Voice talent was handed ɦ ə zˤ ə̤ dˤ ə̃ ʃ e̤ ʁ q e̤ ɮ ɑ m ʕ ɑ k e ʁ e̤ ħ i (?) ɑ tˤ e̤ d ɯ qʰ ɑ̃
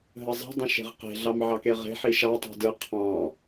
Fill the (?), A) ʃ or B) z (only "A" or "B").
A